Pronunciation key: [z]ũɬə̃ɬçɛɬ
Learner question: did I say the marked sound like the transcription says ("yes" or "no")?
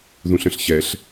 no